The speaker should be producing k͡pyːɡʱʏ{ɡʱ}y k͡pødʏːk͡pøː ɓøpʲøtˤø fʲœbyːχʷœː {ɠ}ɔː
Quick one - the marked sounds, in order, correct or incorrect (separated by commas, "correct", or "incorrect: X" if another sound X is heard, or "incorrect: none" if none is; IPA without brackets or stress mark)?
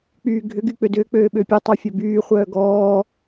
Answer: incorrect: ɡ, incorrect: ɡ